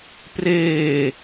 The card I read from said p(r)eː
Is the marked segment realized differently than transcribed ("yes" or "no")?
no